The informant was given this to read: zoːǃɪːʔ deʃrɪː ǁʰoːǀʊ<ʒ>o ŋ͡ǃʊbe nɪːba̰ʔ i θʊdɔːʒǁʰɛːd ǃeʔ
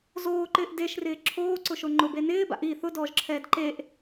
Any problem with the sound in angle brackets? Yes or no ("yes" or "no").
yes